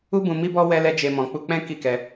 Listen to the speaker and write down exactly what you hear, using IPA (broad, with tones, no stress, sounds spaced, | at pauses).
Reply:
u˦ b ũ˧ m i˦ b ɔ˦ w ɛ˦ l ɛ˦ d͡ʒ e˧ m ɔ̃˨ k͡p u˧ k͡p ɛ̃˦ k i˦˨ k ɛ˧